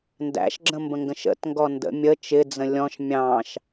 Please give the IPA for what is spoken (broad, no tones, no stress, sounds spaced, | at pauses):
n d æ̰ ʃ ɡ͡ǁ ə̃ m b ə̃ ŋ ɡ ə̃ ʃ ə̰ t ŋ ɡ ɔ n d ə̰ mʲ ə t͡ʃ ɪ d͡z ə̃ lʲ ɔ̃ ʃ mʲ ɑ̃ ʃ